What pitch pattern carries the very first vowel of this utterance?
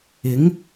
rising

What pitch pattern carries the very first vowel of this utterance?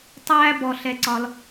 high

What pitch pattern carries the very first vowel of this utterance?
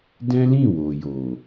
high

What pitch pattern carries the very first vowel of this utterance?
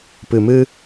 low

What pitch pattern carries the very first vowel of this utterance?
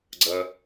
low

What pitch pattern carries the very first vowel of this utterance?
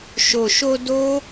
low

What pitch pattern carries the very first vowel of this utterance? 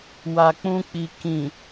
low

